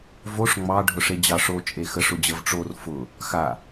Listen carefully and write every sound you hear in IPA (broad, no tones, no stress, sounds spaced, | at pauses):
v o ʂ ŋ͡m ɑ ɖʱ ʊ ʂ e d͡ʑ ɑ ʂ o t͡ʃʼ e x ə ʂ ʊ d͡ʑ ə v ʈ͡ʂ o r f ʊ | x a